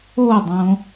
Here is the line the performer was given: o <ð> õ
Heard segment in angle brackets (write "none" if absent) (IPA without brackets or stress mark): dˤ